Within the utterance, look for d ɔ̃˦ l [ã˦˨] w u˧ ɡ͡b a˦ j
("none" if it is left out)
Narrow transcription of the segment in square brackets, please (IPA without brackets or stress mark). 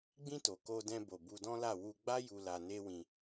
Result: a˦˨